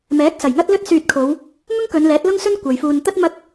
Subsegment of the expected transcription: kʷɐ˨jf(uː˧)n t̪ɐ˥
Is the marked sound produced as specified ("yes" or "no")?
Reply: yes